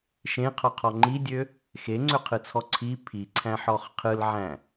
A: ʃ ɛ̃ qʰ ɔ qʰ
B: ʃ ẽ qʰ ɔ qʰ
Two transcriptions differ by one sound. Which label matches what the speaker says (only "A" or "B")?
B